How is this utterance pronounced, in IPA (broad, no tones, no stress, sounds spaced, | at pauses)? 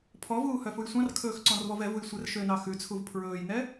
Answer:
pʰ ɔ v uː h œ f u j sʷ ɑ̃ r kʰ ɵː x ǀ ɔ̃ r v ɔ v ɛ v u j sʷ ɛ r ʃ ø n ɑ x ʉ t͡sʰ u v pʰ ɹ ɵː j n ɛ